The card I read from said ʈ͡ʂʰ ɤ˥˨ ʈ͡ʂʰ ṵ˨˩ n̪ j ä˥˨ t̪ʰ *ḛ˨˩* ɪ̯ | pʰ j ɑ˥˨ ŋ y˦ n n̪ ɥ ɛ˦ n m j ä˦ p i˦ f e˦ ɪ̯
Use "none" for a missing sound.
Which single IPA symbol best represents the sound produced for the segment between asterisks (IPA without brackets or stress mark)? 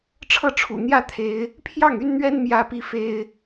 e˨˦